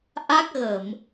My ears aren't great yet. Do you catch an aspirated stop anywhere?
no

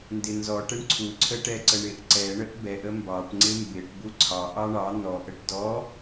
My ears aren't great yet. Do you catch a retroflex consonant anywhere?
yes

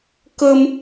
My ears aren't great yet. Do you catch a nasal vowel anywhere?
no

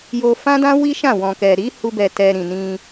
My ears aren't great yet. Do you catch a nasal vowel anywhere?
yes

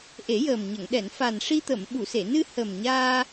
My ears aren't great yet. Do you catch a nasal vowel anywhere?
no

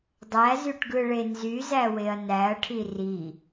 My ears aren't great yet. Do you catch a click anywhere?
no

